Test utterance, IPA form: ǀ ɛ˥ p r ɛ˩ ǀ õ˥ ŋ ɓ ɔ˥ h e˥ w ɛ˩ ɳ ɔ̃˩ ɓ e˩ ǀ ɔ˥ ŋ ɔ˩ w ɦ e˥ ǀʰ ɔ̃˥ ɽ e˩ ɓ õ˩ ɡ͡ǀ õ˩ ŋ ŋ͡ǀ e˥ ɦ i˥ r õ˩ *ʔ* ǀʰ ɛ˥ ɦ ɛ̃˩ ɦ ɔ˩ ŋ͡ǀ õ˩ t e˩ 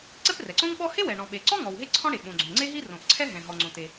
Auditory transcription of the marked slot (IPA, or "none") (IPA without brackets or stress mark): ʔ